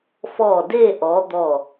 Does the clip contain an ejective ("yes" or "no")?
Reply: no